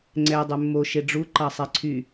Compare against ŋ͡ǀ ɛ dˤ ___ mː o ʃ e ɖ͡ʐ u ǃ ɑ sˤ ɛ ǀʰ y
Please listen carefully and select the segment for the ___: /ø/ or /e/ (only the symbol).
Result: ø